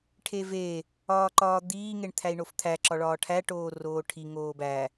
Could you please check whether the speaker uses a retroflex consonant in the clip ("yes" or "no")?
yes